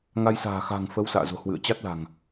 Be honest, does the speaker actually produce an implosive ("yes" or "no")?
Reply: no